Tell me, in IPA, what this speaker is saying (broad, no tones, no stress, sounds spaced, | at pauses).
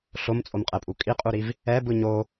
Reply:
ɬ o m t͡sʼ o m qʼ ɛ pʼ u kʼ i qʼ u ɾ i v | ɛ b ɯ ɲ o